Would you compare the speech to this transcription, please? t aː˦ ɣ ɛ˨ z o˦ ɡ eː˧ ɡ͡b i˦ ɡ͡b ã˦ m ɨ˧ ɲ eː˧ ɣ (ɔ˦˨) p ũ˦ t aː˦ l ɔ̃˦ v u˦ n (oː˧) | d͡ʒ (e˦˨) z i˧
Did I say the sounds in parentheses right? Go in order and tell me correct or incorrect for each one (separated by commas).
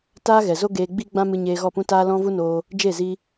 correct, correct, correct